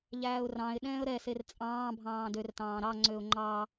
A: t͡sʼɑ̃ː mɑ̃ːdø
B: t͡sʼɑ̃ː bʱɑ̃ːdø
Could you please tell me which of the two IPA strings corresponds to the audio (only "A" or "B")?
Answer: B